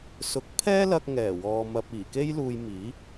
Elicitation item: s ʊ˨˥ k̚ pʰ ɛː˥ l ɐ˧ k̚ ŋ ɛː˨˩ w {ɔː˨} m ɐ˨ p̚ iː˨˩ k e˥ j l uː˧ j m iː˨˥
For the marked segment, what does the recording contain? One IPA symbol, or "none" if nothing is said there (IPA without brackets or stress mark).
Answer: ɔː˨